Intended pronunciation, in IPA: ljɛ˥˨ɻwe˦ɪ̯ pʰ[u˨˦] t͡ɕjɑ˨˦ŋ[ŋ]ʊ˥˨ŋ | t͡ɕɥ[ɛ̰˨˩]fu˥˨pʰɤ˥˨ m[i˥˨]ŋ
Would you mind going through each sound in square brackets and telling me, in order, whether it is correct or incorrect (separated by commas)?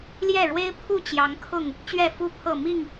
incorrect, incorrect, incorrect, correct